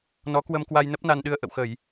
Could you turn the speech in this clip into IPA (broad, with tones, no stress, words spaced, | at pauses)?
nɔ˨˦kwə˧mkwa˧j nə˦˥p̚na˧nɗɨ˧ə̯ ʔə̰˧˨wxə˧˩˨j